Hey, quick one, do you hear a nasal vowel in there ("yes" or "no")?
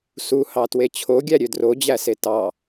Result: no